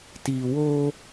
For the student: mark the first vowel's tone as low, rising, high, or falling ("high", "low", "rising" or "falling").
low